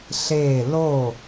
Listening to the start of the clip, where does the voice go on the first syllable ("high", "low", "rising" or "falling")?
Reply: falling